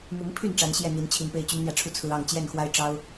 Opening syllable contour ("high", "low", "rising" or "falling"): rising